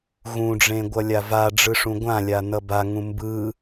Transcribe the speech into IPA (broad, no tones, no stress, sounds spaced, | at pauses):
ɣ ũ ɖ͡ʐ ẽ ɡʷ ʌ lʲ a v a ɖ͡ʐ ɯ ʂ ũ ɡʷ ã lʲ a n ʌ b a ŋ ũ m b ɯ